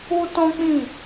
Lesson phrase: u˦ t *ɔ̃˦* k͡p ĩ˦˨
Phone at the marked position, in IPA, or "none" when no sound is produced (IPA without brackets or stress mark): ɔ̃˦